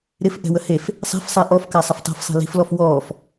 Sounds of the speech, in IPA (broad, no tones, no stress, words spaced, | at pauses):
ɾɪf ʔɛ̤wəhef | sˤɛ̤fsˤɛ ʔɔfka sˤɪftˤɛ̤fsˤi̤ li̤flɔf wɔːf